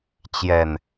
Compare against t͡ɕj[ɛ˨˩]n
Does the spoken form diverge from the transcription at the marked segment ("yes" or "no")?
no